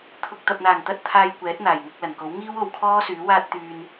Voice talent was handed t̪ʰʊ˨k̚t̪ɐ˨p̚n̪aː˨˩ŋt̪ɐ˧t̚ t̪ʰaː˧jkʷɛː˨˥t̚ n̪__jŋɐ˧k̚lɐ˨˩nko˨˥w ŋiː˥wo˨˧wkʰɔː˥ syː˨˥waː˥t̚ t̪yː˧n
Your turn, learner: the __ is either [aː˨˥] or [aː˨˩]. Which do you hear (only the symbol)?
aː˨˩